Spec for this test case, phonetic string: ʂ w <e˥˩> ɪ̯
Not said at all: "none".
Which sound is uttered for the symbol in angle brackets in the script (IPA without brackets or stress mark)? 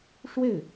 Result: e˥˩